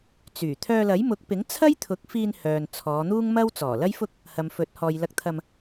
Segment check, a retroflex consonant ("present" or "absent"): absent